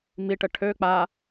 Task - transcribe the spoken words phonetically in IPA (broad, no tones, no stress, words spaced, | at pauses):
miʈə ʈʰø k͡pa